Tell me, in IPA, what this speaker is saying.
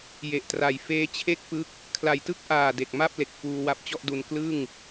j e˨˩ ʔ t r a˨˩ j f eː˦˥ t͡ɕʰ e˥˩ k̚ p ɯ˦˥ k̚ | kʰ l a˨˩ j t ɯ˥˩ k̚ ʔ aː˨˩ d e˨˩ k̚ m a˥˩ p̚ l e˨˩ k̚ f uː˧ w a˦˥ p̚ t͡ɕ ɔ˥˩ ʔ d u˧ n k l ɯ˥˩ ŋ

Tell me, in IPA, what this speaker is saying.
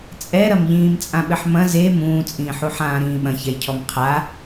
t͡sʼ ɛ ɾ ɐ m ʎ ĩː m t͡sʼ ã ɓ ɘ ħ m ɐ̃ z e m ũː t͡sʼ ĩː ħ u ħ ãː ɾ ĩː ɓ ɐ̃ ç ɛ j cʰ ɔ m qʰ a

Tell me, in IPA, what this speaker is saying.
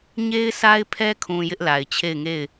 ɲ e˦ ɪ̯ sʰ a˦ ɪ̯ pʰ ɛ˦ kʰ ũ˨ j ɪ˦ ʔ l a˨ ɪ̯ t͡ɕʰ e˦˨ ɪ̯ ŋ e˦˨ ɪ̯

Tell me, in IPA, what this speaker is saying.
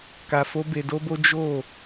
k a˧ f o˦ b e˧ d o˦ b o˦ d͡ʒ o˦˨

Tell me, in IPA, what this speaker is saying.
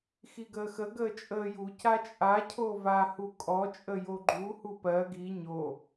x i ɡ əː x ə ɡ əː t͡ʃʼ əː j u c a t͡ʃʼ a cʰ o v a h u kʼ ɔ t͡ʃʼ ə j o ɡ͡ǃ u h u p ɜ ɡ i ɲ o

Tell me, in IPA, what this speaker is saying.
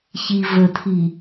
ç i v ə tʰ i

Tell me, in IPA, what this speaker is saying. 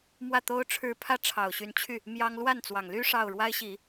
m w ä˥˩ t̪ o˥ ʊ̯ ʈ͡ʂʰ ɻ̩˥˧ pʰ ä˥˩ ʈ͡ʂʰ ɑ˨˩ ʊ̯ ɕ y˧˥ n t͡ɕʰ y˥˩ | m j ɑ˥ ŋ l w a˥˩ n t͡s w ɑ˨˩ ŋ l y˥ ʂ ɑ˥˩ ʊ̯ ɻ w a˥ ɪ̯ ɕ i˨˩˦

